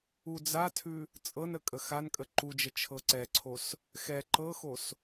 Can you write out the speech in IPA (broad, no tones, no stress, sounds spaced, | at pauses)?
u d͡z a tʰ ʉ | t͡sʼ ɤ n ə kʼ ə x a n kʼ ə ǃ u d͡ʒ ə t͡ʃʰ ɤ ǀ ɛ ǀʰ o s | x ɛ ǃ ɤ x o s